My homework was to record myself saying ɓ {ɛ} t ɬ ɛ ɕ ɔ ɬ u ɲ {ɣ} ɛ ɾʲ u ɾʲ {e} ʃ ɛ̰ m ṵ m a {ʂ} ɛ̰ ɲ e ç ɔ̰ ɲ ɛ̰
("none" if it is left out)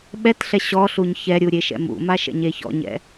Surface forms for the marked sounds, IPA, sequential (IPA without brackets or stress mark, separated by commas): ɛ, ç, e, ʃ